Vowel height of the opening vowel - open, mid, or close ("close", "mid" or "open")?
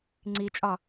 close